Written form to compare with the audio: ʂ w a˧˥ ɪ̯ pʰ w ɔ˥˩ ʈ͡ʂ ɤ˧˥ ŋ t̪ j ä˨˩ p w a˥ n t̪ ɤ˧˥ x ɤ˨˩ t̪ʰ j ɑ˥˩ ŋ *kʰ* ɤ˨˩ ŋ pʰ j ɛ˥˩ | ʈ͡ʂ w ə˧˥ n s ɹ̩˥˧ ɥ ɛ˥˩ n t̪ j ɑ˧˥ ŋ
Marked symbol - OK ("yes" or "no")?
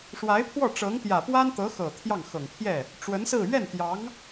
no